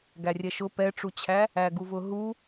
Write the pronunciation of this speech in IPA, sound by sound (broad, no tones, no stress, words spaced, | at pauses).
ɡærʲɛʃʊ pɛʈ͡ʂut͡ɕʰæ | æɡuvʊɦu